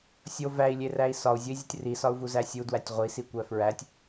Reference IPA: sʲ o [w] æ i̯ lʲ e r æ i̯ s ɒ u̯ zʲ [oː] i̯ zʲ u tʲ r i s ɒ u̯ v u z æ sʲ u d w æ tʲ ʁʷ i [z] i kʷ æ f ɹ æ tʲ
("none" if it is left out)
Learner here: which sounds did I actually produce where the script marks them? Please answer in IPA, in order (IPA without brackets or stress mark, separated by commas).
v, o, s